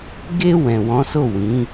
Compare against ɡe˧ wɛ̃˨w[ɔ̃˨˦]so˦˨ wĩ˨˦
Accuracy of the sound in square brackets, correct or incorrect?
correct